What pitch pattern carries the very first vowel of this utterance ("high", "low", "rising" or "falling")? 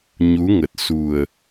rising